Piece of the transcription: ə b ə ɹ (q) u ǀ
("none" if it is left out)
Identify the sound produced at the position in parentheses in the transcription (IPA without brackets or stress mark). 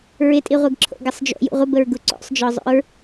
ɡ